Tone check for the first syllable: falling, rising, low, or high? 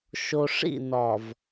low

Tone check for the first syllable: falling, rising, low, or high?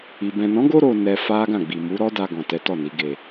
low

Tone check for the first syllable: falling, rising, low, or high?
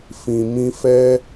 low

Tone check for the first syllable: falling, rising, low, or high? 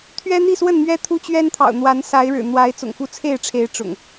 high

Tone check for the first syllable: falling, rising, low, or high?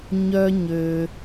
high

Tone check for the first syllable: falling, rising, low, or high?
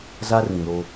high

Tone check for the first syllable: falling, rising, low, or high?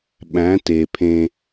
rising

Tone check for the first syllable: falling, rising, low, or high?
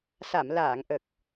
low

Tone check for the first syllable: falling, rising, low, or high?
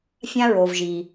high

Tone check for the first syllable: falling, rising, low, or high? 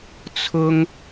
high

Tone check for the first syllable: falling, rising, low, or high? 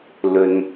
low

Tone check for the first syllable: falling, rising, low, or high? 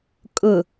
low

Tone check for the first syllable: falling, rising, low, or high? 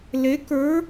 rising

